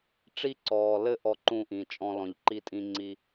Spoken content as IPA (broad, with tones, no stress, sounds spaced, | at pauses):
ʈ͡ʂ i˧ ǀ ɔː˩ l ɘ˧ ʔ ɔ˧ ǃ ũ˧ ʔ ĩ˩ t͡ʃʼ ɔ̃˧ l ɔ̃˩ ʎ ǃ i˧ tʼ ĩ˧ ŋ͡ǀ i˧